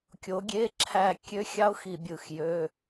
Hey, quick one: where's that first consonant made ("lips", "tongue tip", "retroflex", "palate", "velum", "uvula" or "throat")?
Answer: velum